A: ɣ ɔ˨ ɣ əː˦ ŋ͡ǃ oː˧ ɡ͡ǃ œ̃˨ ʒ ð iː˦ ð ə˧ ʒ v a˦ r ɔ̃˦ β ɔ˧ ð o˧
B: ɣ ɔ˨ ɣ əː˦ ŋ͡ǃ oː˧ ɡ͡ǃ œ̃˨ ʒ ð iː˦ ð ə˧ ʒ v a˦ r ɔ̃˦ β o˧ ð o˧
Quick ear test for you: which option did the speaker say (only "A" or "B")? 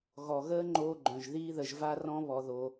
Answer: A